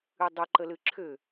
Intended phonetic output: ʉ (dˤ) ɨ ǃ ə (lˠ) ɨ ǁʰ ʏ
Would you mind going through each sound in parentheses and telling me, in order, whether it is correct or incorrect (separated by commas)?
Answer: correct, incorrect